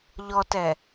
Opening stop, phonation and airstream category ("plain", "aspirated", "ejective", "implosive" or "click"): plain